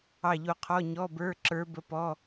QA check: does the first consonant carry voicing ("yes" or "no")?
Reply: yes